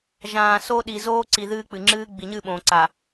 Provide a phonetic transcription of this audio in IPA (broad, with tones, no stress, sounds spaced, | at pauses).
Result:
ʒ ãː˨ s o˦ ɗ i˨ z oː˦ ǀ i˨ ð ɨː˦ k͡p ɨ˨ ŋ͡ǁ ɨː˦ ɡ͡b i˨ ɲ ɨ˦˨ ɓ õː˨ ǀ a˨